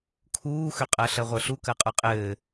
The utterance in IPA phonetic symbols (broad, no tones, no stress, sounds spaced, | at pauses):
kʰ uː x ø qʼ ɜ ɬ ɜ ʁʷ ə˞ ɬ u k ɜ qʼ ə˞ qʼ ɘː